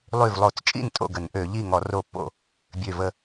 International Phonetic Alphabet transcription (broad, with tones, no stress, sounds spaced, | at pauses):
lˠ y˧˩ v lˠ o˧˩˧ t͡s t͡ʃʼ ḭ˥˩ n tʼ o̰˥˩ ɡ ə˧˩˧ n ʔ ø˧˩˧ ʎ i˥˩ ŋ ɔ˧˩˧ r o˧˩ pː o̰˥˩ | bʲ ø˧˩ v ə˥˩